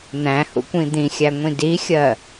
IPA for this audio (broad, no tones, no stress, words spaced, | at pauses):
n̪æ̃hṵkʷĩ d̪ĩxʲæŋʷĩ dixʲɜ